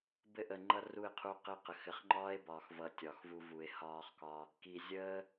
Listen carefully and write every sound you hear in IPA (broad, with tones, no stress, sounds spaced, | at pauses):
b ɘ˧ ʔ ə˨ ŋ͡ǃ ʌ˧ r u˦˨ e̯ qʰ u˧ o̯ q ɘ˦ q ə˨ x ɘ˨ χ ŋ͡ǃ ɒː˦ e̯ b ɒː˨ x v ʌ˨ tʲ ɒ˨ x v u˧ v u˨ e̯ h ɒː˧ χ k ɒ˧ | k i˨ zʲ əː˦